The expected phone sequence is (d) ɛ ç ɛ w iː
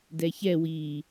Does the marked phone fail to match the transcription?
no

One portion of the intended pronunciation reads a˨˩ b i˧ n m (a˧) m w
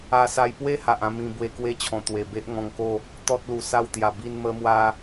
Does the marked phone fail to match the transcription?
yes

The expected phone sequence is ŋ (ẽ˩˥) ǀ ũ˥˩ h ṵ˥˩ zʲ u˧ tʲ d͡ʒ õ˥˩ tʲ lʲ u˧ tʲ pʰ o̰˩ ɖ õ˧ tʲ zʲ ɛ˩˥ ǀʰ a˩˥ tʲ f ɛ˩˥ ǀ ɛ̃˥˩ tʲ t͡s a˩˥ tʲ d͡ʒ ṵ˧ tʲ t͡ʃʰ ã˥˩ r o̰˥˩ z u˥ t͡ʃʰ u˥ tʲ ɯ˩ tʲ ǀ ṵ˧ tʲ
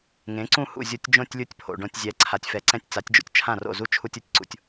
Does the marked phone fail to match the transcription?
no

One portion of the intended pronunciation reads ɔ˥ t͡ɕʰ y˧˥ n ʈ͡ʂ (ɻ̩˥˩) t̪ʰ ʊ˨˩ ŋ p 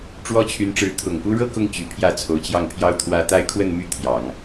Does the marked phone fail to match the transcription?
yes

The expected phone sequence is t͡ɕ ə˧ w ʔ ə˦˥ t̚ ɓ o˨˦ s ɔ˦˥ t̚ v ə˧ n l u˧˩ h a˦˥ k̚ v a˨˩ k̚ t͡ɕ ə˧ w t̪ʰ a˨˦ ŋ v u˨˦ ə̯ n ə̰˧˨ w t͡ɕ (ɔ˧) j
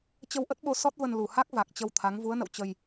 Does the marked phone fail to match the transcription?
yes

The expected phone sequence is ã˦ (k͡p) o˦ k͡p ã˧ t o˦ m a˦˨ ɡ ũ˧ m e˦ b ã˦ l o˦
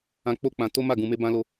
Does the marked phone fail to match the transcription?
no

